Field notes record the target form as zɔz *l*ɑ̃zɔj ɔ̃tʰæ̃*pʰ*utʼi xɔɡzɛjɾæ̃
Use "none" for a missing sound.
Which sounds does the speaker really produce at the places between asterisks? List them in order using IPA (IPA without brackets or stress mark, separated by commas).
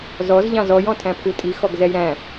ʎ, pʰ